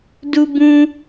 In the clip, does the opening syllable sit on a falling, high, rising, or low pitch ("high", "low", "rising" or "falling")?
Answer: high